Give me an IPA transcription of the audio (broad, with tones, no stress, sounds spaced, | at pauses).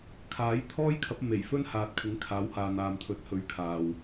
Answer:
kʰ aː˨˥ j t̪ʰ ɔː˥ j kʰ ɐ˨˥ p̚ m e˨˩ j f ɵ˥ n h aː˨ t̚ kʷʰ ɪ˨˥ ŋ kʰ aː˨˥ w h aː˨ n̪ aː˨ m t̪ʰ ɵ˨˥ t̚ h ɵ˨˧ ɥ kʰ aː˨ w